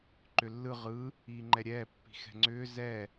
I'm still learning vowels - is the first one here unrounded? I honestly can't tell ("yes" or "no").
no